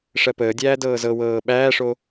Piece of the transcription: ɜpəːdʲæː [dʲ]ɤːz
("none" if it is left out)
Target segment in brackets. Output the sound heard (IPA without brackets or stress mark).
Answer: d